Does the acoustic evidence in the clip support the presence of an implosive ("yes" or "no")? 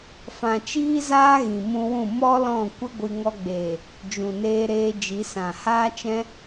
no